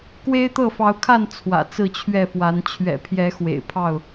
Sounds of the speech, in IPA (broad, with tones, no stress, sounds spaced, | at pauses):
k w e˦ ɪ̯ t̪ ɤ˥˨ f ɑ˨˦ ʊ̯ kʰ a˥˨ n t͡sʰ w ä̰˨˩ t͡s ɹ̩˥˨ t͡ɕʰ ɥ ɛ˥˨ f w a˨˦ n t͡ɕʰ ɥ ɛ̰˨˩ pʰ j ɛ˨˦ x w ḛ˨˩ ɪ̯ pʰ ɑ˥˨ ʊ̯